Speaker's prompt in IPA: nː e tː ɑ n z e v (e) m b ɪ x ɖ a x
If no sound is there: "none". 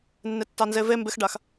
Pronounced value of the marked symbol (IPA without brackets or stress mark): e